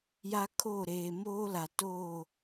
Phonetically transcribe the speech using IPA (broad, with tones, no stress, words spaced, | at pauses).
ja˦kʰo˦˨ ɾeː˨moː˦la˨toː˦˨